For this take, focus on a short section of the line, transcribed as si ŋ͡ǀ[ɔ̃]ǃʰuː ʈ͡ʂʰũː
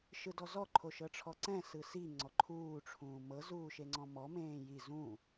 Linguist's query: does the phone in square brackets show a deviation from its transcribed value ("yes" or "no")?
yes